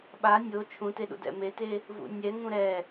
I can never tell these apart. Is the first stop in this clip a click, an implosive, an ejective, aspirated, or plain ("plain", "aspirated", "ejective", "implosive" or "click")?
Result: implosive